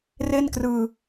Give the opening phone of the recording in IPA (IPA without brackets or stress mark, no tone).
r